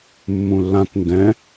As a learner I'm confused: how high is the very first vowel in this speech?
high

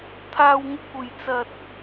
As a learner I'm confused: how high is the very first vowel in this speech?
low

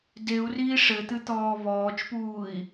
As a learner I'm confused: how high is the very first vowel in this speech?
mid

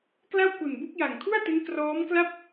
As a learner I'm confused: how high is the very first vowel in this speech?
low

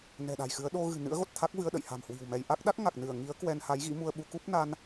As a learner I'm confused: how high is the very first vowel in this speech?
mid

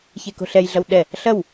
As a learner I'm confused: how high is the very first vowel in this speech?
mid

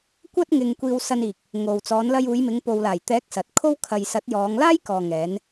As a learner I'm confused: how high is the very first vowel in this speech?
low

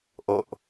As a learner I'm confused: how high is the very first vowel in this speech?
mid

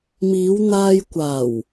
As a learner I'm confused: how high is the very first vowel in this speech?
high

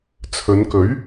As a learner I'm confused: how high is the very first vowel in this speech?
mid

